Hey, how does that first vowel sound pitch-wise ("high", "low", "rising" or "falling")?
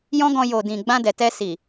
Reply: high